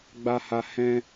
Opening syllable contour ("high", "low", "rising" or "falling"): high